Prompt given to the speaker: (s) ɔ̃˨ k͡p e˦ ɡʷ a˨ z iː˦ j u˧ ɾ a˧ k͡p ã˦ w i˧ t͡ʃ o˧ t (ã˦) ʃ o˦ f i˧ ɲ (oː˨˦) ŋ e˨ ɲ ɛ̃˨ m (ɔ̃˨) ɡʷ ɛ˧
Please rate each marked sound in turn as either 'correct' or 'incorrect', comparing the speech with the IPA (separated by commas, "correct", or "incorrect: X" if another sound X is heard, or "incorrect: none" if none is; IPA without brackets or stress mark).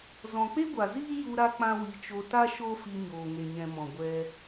incorrect: z, incorrect: a˦, incorrect: oː˨, correct